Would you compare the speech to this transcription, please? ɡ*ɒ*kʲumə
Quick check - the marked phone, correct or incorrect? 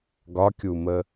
correct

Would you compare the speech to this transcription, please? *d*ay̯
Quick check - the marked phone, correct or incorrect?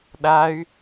incorrect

